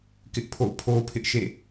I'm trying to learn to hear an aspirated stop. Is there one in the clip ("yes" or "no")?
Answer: yes